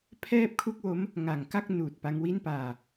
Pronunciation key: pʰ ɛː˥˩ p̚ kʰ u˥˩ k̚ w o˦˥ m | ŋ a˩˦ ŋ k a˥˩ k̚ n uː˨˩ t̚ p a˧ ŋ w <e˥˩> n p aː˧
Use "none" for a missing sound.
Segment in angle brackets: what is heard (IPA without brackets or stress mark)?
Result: i˥˩